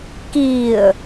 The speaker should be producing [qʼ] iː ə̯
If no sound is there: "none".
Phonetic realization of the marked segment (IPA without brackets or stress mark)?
k